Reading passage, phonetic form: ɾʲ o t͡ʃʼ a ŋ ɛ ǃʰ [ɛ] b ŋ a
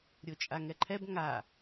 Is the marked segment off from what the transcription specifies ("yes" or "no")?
no